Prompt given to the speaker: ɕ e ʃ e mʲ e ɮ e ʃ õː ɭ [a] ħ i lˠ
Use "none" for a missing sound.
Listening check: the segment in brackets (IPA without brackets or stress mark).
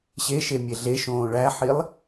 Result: æ